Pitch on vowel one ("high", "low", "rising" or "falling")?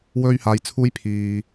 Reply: high